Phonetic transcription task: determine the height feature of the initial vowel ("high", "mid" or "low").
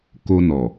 mid